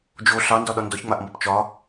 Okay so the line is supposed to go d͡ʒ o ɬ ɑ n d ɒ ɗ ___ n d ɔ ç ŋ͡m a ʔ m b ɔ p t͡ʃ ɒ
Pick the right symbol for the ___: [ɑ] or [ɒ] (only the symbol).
ɒ